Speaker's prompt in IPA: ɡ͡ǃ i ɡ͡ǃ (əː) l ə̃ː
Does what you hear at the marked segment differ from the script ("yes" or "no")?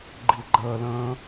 no